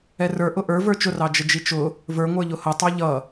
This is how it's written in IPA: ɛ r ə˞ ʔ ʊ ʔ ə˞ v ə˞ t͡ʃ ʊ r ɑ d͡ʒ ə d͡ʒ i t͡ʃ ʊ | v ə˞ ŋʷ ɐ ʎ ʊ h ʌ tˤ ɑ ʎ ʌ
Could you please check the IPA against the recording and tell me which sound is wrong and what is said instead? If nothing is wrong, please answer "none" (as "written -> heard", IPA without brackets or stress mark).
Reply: ɐ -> ə˞